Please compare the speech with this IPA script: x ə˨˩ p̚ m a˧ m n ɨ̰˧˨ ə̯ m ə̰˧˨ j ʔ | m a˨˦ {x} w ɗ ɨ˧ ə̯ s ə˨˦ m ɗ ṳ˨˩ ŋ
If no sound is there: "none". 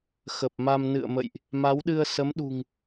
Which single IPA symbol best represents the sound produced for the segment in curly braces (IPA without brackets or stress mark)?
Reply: none